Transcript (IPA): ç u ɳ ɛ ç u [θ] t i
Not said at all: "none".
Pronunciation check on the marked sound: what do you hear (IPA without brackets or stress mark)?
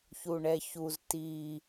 z